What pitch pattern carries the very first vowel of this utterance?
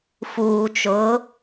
low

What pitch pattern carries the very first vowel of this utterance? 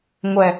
low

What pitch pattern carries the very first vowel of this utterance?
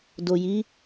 low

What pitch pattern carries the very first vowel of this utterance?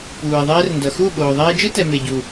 low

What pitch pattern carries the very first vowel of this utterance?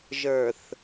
low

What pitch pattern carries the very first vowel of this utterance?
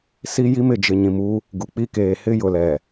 high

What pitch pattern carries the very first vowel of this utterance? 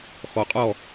low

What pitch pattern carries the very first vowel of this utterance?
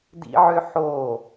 high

